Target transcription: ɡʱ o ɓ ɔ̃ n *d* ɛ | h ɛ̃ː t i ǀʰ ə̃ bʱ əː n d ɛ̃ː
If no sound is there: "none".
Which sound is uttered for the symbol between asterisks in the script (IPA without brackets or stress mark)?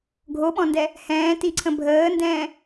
d